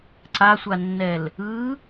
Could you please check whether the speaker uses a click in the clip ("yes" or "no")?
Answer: yes